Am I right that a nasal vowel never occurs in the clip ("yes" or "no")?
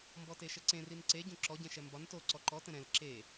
no